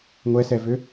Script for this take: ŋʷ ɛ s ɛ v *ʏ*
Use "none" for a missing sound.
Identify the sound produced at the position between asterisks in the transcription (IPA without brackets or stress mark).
ʏ